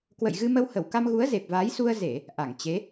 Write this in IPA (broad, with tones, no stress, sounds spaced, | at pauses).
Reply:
k w ə̰˧˨ j ɣ ɨ˧ m ə˧ w h ə˧˩ w k a˧ m ɣ u˨˦ ə̯ z e˨˩ p̚ v aː˨˦ j s u˧ ə̯ z e˧˩˨ | ʔ a˧˩ ŋ t͡ɕ e˨˦